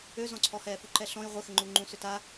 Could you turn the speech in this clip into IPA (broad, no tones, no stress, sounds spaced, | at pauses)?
ø z ɔ̃ ǀʰ ɔ h ɛː f u ǃ ɛ ɬ ɔ̃ j ʁʷ ɘ x ɘ ŋ͡ǃ u ŋ͡ǃ ũ s ʏ t a